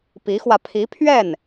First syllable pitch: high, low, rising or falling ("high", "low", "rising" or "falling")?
rising